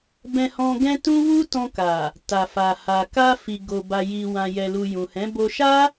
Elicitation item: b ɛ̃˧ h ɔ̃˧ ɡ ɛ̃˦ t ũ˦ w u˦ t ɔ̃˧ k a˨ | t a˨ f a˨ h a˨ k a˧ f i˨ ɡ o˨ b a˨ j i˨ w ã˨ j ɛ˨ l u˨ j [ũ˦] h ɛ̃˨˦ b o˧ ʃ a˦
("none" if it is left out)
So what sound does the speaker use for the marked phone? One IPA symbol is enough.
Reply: ũ˨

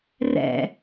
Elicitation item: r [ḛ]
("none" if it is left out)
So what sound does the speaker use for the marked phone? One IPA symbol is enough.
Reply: ɛ̰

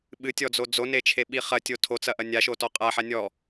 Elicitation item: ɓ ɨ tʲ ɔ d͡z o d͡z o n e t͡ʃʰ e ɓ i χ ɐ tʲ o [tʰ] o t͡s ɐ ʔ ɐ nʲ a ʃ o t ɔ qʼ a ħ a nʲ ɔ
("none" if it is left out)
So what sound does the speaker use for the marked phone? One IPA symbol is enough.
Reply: tʰ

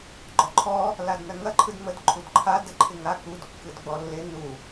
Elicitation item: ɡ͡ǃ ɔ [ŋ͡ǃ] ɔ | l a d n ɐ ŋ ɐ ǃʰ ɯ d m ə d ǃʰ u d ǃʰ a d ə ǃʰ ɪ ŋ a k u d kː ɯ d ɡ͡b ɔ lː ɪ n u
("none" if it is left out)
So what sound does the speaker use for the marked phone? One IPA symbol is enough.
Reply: ǃʰ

